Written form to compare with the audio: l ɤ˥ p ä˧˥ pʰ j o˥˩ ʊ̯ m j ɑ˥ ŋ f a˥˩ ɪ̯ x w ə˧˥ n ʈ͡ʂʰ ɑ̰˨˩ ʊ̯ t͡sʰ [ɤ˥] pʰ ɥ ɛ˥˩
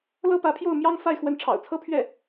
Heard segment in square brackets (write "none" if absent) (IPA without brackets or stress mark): ɤ˥